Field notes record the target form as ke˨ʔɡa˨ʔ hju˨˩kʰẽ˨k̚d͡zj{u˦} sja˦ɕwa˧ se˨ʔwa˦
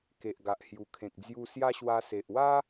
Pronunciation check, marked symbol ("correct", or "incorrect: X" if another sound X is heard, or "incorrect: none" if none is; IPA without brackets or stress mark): incorrect: u˧